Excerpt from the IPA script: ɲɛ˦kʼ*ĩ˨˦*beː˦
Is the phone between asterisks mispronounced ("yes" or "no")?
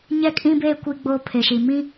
yes